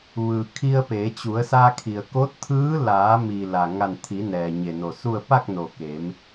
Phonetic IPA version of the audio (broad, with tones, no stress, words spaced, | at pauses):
ʋɯː˩ kʰi˧ə̯pe˩˧t͡ɕu˩˧ə̯sa˧ kʰi˩ə̯ko˧˥t̚t̪ʰɯː˧˥ laː˩˧mi˩ la˩ ŋa˧˩nt̪ʰi˩˧ nɛː˩ɲe˧˩no˧˩su˥˨ə̯ pa˥˨k̚no˩ ke˩˧m